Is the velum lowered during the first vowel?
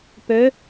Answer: no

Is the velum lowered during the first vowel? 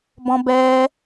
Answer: yes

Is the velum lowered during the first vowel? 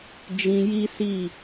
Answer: yes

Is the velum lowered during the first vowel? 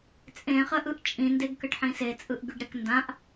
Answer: yes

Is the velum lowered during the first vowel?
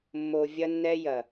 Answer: no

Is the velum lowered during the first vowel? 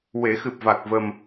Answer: no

